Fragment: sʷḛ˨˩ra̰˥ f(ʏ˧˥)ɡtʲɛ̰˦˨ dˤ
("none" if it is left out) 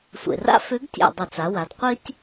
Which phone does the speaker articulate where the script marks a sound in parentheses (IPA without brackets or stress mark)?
ʏ˧˥